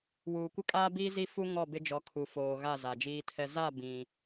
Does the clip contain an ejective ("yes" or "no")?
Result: yes